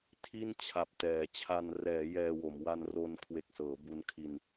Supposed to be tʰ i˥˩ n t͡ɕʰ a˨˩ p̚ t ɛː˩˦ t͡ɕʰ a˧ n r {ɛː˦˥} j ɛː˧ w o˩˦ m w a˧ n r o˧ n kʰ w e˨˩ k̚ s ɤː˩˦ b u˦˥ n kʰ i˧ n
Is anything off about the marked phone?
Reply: yes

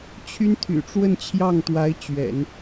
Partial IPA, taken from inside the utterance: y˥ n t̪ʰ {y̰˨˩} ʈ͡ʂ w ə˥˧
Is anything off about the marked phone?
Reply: no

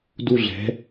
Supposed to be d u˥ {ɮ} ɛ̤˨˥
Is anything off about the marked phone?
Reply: no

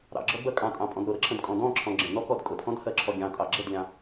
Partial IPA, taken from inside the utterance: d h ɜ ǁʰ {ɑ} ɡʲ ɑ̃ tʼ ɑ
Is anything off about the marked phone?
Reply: yes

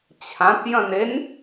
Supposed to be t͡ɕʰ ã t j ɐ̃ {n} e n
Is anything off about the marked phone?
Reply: no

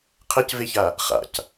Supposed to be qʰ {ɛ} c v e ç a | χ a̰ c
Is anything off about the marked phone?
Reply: no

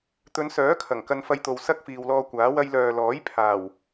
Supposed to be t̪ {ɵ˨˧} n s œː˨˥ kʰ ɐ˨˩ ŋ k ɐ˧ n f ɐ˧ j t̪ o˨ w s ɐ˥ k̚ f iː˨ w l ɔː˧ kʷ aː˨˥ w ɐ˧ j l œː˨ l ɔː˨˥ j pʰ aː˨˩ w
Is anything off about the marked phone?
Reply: no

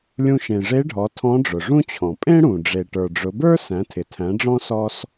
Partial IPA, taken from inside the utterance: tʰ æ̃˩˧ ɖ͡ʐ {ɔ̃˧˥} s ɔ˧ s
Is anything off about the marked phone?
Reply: yes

